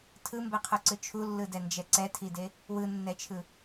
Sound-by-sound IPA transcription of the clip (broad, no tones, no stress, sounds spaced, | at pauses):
tʰ ɯ m b ɛ qʰ o ǀ ɯ t͡ʃʰ u lː ɯ d ɛ n d͡ʒ ɛ ǀ ɛ tʰ i d e | w ɯ nː ɛ t͡ʃʰ ɯ